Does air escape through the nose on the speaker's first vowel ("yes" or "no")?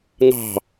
no